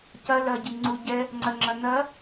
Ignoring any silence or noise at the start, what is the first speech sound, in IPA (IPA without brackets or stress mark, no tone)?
c